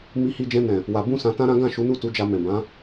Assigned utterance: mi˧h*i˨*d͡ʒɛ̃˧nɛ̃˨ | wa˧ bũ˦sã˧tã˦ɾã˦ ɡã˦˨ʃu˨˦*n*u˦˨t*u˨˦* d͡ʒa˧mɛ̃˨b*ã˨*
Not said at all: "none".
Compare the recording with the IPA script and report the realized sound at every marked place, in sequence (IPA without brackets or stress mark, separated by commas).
i˧, n, u˨˦, ã˨˦